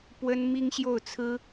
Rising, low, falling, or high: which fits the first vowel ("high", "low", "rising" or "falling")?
high